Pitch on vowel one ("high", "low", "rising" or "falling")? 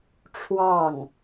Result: falling